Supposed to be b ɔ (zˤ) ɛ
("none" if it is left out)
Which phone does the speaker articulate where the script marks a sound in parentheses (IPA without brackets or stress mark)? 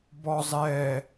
zˤ